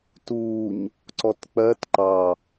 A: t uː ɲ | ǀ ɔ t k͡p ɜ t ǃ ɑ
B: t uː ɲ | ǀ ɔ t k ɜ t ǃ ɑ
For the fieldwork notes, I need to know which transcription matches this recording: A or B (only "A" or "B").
A